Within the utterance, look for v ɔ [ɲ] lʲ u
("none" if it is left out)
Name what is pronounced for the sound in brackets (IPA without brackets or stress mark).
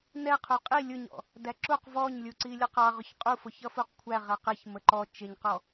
ɲ